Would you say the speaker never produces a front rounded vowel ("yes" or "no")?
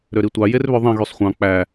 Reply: no